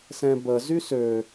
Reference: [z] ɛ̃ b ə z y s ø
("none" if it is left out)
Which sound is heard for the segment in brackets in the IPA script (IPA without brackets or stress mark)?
s